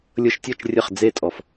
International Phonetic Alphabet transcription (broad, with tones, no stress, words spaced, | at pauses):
lʲɤ˧ʃtʲɤ˦˨t͡ʃ rʲə˦˨χ d͡ze˦˨tʼɔ˨f